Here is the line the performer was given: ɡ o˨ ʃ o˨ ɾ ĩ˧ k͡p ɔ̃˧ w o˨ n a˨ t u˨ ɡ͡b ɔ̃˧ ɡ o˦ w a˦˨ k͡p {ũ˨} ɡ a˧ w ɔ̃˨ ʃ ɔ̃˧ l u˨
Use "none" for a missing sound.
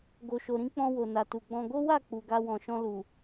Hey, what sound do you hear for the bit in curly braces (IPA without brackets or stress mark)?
u˨